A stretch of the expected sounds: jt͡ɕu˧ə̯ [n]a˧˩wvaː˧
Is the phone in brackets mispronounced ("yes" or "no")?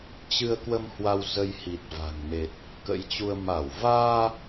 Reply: yes